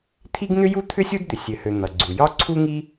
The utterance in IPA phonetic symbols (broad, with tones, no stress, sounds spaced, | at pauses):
t̪ʰ i˥ ɡ n̪ ʏ˥ j u˥ t̪ʰ ʏ˥ sʲ u˥ d d̪ ʏ˩ sʲ ø˩ h ø˩ n̪ ʌ˩ ɡ͡ǀ u˩ j ɒ˥ ǀʰ u˥ ŋ i˥